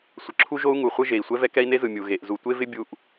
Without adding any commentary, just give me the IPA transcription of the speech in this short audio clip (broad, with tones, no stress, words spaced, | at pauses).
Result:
sʷə˨ǁʰu˦ʒo˦u̯ ŋu˨χʷɯ˦ ʒe˨i̯ sʷɛ˦vɛ˦ kɛ˦i̯ne˦zɯ˨ mʲu˨ ɣe˨ʔ zu˨tʷe˦vɪ˦ bʲu˦ʔ